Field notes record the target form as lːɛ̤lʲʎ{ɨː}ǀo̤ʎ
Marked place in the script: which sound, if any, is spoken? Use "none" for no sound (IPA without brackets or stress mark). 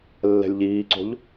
iː